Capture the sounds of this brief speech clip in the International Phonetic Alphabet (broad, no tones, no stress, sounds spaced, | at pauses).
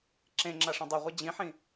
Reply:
ǁ ẽ ŋ͡ǁ a ʂ ẽ dˤ e ʁʷ i d͡ʑ ĩ ħ ĩ